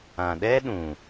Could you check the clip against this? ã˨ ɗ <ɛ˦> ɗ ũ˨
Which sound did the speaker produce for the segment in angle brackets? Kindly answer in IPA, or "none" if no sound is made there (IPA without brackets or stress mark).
ɛ˦